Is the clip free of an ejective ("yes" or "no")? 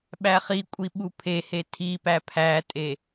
no